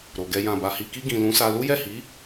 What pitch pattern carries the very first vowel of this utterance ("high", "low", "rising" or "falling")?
low